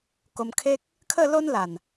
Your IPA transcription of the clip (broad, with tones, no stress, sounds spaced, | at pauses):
k o˧ m kʰ e˦ k̚ | kʰ ə˥˧ l o˦ n l a˨˩ n